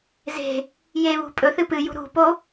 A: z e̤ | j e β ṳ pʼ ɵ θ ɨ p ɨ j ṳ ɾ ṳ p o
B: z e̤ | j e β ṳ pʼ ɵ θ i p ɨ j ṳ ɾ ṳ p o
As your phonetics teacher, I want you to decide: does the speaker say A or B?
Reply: A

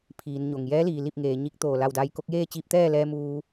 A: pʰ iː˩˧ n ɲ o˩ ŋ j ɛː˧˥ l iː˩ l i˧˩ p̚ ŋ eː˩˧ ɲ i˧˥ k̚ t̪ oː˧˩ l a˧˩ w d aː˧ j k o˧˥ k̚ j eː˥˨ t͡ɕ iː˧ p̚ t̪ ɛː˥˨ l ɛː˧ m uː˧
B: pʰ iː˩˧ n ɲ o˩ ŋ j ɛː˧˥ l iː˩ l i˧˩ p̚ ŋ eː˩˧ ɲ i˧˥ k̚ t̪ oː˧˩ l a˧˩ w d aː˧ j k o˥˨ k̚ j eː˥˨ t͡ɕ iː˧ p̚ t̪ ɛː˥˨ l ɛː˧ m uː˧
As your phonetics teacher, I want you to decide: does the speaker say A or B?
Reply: A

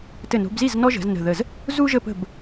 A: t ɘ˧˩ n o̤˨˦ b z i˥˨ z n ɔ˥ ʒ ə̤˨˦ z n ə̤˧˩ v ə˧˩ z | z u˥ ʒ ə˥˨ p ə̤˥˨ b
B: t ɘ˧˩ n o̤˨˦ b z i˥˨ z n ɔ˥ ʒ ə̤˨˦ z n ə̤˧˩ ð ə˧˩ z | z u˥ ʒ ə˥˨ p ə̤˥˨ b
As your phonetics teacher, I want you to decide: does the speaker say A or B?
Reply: B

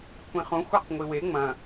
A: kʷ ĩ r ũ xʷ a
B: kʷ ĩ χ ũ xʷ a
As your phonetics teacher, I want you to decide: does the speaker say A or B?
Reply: B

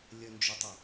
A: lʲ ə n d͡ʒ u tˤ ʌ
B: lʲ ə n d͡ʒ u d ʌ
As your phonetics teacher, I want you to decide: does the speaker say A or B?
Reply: A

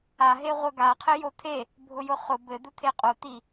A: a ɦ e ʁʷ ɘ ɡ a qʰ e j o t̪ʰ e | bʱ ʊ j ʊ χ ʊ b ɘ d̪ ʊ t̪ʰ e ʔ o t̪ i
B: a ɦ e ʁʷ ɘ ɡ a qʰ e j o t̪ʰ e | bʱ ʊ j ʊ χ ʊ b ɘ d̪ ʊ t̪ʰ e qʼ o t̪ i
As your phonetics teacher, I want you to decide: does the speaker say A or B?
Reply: B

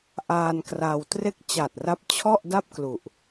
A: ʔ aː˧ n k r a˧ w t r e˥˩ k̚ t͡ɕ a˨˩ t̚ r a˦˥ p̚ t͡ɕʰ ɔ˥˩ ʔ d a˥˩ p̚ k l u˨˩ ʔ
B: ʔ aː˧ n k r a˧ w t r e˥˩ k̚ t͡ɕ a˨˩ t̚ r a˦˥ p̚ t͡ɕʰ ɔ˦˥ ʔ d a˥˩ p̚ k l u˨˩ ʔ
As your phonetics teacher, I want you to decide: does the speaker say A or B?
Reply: A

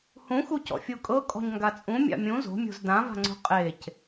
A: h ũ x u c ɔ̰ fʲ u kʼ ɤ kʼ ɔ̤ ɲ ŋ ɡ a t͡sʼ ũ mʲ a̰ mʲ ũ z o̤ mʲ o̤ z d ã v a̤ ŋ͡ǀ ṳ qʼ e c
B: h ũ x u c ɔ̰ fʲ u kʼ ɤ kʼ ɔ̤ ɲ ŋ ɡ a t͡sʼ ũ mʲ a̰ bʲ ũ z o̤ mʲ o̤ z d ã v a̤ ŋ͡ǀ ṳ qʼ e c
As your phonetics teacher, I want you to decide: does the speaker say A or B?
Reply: A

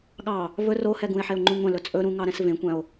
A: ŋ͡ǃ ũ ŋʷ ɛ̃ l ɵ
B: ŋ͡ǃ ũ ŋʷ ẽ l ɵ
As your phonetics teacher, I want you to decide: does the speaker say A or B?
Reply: A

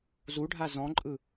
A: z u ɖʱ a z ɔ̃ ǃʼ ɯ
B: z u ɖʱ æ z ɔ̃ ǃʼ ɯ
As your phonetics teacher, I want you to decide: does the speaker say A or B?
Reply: A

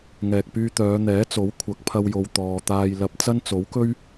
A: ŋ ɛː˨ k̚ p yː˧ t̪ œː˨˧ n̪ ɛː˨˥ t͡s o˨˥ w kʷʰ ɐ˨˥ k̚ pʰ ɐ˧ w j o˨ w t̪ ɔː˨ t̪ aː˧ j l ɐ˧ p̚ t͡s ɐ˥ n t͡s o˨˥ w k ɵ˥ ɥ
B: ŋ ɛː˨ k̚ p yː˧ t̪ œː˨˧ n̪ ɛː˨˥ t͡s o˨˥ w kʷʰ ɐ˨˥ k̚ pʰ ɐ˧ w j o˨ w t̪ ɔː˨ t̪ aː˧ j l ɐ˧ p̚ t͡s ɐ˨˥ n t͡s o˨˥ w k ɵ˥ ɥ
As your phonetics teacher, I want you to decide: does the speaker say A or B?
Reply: A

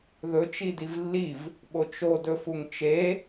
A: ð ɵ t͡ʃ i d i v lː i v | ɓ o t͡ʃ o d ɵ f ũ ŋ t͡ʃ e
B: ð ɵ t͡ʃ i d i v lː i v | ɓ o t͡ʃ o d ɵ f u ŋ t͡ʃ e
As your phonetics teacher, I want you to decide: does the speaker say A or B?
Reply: B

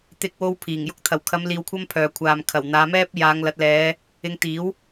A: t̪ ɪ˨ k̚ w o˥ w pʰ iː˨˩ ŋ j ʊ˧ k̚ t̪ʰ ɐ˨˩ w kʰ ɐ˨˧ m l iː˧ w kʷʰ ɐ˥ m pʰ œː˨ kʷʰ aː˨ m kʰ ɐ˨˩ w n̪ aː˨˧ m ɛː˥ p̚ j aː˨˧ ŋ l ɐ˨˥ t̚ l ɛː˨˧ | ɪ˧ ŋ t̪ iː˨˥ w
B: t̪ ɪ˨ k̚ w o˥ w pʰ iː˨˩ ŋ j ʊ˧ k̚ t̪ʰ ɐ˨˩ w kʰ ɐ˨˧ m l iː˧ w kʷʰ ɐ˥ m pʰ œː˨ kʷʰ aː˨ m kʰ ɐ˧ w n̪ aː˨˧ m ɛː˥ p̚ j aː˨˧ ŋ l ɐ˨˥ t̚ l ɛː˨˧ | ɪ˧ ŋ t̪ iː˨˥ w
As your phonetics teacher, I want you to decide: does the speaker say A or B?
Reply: A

